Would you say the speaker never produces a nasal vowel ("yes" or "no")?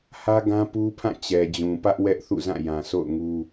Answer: no